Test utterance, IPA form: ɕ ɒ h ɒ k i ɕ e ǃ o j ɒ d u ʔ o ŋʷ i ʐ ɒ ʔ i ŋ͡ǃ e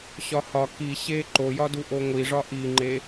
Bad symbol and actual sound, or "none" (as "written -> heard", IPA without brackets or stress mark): none